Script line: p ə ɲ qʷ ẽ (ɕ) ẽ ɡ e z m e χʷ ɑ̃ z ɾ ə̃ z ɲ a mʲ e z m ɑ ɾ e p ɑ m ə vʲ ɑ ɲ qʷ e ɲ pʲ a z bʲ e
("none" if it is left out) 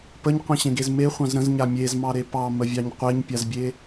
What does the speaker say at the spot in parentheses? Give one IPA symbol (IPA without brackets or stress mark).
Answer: ɕ